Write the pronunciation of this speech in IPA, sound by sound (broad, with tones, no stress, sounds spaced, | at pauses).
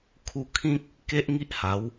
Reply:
kʰ u˧ kʰ ĩ˦ k̚ | k e˦ ʔ ŋ i˦ ʔ h a˨˦ w